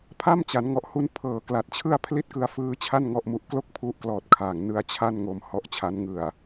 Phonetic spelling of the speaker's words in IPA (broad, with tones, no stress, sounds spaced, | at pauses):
pʰ a˥˩ m t͡ɕ a˩˦ n ŋ ɔ˨˩ ʔ h u˦˥ n pʰ ɤː˨˩ k l a˨˩ t̚ t͡ɕʰ ɯ˥˩ a̯ pʰ l i˥˩ t̚ k ɯ˧ a̯ f ɯː˦˥ t͡ɕʰ a˥˩ n ŋ ɔ˥˩ ʔ m u˦˥ ʔ k l o˥˩ k̚ pʰ u˦˥ ʔ k l ɔː˨˩ t̚ kʰ a˨˩ ŋ n ɯ˦˥ a̯ t͡ɕʰ a˥˩ n ŋ o˧ m h ɔ˦˥ ʔ t͡ɕʰ a˦˥ n ŋ ɯ˨˩ a̯